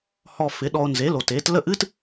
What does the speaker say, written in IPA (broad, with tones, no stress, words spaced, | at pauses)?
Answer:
hɔ˧ fɪ˩˥ɗɔ˧o̯ nze˩˥lo˩ te˩˥t lə˥˩ʔɨ˥t